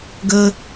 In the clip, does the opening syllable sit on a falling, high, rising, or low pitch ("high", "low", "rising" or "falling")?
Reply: high